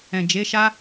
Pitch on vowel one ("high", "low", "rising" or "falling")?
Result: low